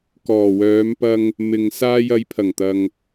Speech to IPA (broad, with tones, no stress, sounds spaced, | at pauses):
k ɔː˨˩ w œː˨˧ m p ɐ˧ ŋ | m ɪ˨ ŋ s aː˧ j ɐ˨˧ j pʰ ɐ˨˩ ŋ t̪ ɐ˨ ŋ